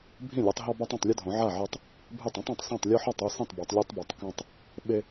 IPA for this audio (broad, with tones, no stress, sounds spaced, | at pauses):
bʱ ĩ˥˩ lʲ u˨˦ tˤ ɦ ɔ˦ b a˦ tˤ ũ˥˩ tˤ lʲ ɘ˦ dʱ õ˨˦ ʕ a˥˩ ʕ e˦ tˤ | bʱ e˥˩ tˤ ĩ˦ tˤ ã˨˦ tˤ s ã˥˩ tˤ lʲ ɔ˦ ħ ɔ˥˩ tˤ u˥˩ s ĩ˥˩ tˤ b o˨˦ tˤ lʲ e˦ tˤ b ɛ˨˦ tˤ k ã˦ tˤ | ɓ e˦